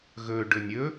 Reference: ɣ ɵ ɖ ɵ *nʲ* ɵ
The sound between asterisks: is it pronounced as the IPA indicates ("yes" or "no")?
yes